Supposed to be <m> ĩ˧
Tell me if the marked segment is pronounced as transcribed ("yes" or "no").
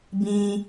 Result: no